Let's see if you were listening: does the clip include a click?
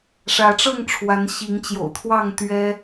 no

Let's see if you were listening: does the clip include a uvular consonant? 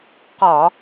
yes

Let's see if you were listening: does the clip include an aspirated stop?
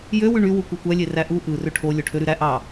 yes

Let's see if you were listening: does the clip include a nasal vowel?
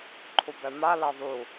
no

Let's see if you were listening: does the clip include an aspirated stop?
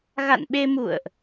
no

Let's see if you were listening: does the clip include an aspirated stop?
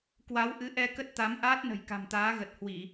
no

